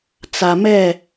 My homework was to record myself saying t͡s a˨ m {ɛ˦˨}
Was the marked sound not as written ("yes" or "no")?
no